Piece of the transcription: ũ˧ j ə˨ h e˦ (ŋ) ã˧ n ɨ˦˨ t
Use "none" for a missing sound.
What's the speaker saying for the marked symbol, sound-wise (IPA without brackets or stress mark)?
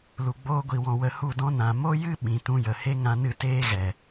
ŋ